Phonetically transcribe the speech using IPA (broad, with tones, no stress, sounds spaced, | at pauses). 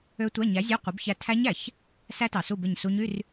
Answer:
ø˦˥ tʷ æ˧˥˧ ɲ æ˨˥ zʲ ɑ˧˥˧ qʷ e˨˥ b ç æ˦˨ tʰ æ˦˥ ɲ æ˨˩ ç | s æ˦˥ t ɑ˨˩ s u˦˨ b e˦˨ ɲ s u˦˥ ɲ y˧˥˧ r